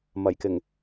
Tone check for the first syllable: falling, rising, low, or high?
low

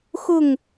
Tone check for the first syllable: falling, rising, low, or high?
falling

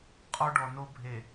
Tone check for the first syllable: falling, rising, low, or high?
high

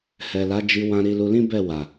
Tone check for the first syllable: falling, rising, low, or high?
low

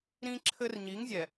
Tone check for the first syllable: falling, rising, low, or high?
high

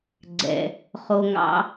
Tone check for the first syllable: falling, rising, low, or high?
low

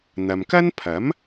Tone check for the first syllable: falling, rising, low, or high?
low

